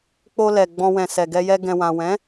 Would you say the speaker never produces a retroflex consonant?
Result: yes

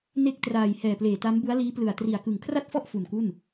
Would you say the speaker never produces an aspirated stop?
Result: no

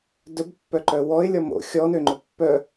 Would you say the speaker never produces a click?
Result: no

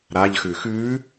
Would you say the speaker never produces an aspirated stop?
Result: yes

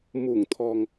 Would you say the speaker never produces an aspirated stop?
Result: no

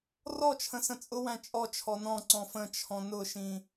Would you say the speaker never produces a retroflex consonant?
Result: yes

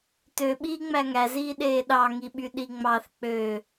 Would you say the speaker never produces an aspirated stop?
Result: yes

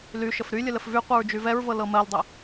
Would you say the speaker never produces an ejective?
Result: yes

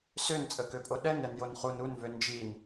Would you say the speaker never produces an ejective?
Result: no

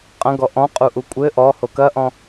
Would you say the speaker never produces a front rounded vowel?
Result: yes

